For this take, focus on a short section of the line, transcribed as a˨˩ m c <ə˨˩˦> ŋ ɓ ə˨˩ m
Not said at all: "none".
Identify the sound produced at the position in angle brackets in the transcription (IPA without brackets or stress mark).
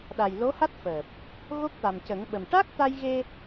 ə˨˩˦